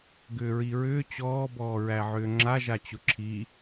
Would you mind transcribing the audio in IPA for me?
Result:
ɡʏːɹiɹʏː t͡ɕɔː bɔːɹæʕʏːŋ͡ǁa ʒat͡ɕʊǁʰi

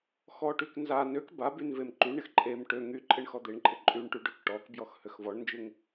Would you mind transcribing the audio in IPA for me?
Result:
xɔʈyk nza nøk babyn vemǃyɳɪx ǃʼem ʈø ŋyǃʼɪɳ xɔd̪eɳǃʼɪ ǃʼyɳʈy ɖøkʈɔkbjɔx høxvɔɳnd͡ʒɪŋ

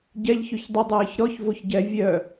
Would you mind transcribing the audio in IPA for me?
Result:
ɟɛʎçøç dˤədˤɛːç ɾɔç voçɟɛ vʲœ

